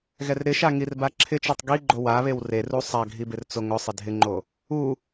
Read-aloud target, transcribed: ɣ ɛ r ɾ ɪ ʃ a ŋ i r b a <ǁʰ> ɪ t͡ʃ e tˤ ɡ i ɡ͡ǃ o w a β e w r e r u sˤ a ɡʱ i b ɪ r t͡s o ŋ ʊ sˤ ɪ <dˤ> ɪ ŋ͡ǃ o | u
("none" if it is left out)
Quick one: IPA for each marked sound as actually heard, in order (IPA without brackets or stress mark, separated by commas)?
ǁʰ, dʱ